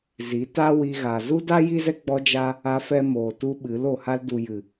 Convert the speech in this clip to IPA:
z i˨˦ t a˦ w i˧ ɣ a˨ z u˦ d a˦ j i˦ z ɛ˦ ɡ͡b ɔ˧ d͡ʒ a˧ | a˧ f ɛ˧ m oː˨ t u˧ ɓ ɨ˨˦ l o˨ h a˧ l d u˨ j ɨ˨

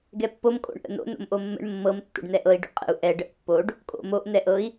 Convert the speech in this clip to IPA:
ɡ ɛ pː o m kʼ o̰ ɳ ʔ ə̰ n o̰ n o̰ m ʔ o mː ə̰ ɳ mː ɤ m tː o̰ ɖ n ɛ ʔ ɤ i̯ ɖ o̰ qʼ ə̰ u̯ ʔ ɛ ɖ ə ʔ pː o ɖ | kʼ o̰ m o ʔ n ɛ ʔ ɤ i̯

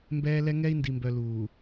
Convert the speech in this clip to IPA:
m b ɛː˦ l ɛ˦ ŋ ɛ˦ i̯ n d i˨ m b œ˨ l uː˨

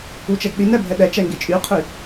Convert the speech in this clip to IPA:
u t͡ʃ ɛ ɡ ɗ i n ɛ bʱ ɛ ɗ ɛ t͡ʃ ɛ ŋ ɡ e t͡ʃʼ y qʰ i

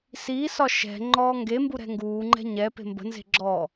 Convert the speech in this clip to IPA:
s iː s ɒ ʃ ɛ̤ ŋ͡ǃ ɔː ŋ ɡ e m b u ɾ ɛ̤ ŋ ɡ uː ŋ͡ǃ ɛ̤ ɲ ɛ p e̤ m b ə̤ n z e̤ ɡ͡ǁ ɔː

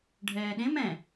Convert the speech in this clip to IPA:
ɖʱ ɛː ɗ ẽ m ɛ̃

